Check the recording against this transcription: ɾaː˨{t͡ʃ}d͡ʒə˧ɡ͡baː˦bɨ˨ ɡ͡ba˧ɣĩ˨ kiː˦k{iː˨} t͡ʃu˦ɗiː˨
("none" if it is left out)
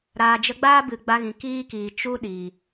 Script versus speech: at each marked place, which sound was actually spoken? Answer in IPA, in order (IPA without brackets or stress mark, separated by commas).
none, iː˨